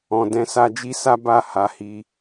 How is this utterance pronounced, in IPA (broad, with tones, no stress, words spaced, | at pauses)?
ɔ̃˨dɛ̃˧sa˧d͡ʒi˦ sa˦ba˦˨ ha˨˦hi˧